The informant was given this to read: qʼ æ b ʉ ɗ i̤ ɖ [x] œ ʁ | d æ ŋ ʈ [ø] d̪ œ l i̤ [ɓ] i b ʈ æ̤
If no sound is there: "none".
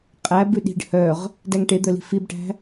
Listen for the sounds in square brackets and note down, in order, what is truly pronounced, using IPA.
h, e, f

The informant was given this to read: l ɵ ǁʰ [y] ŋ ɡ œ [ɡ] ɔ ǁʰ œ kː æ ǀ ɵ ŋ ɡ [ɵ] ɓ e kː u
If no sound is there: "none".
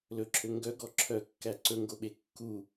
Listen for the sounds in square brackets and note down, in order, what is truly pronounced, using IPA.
ø, ɡ, o

